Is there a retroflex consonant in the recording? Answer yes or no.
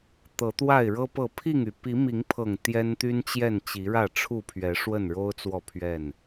yes